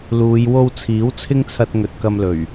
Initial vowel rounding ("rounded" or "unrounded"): rounded